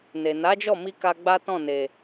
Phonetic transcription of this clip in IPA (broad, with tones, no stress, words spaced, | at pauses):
ne˨ na˨˦d͡ʒɔ˦˨mi˧ka˧ ɡ͡ba˦tɔ̃˦˨ne˨